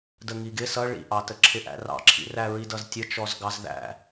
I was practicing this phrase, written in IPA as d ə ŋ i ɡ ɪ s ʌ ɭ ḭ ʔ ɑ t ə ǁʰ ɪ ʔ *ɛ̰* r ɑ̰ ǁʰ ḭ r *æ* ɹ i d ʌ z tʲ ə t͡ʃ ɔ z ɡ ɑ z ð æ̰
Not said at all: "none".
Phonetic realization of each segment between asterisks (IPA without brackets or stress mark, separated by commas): æ̰, æ